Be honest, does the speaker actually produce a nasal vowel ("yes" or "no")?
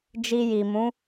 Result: yes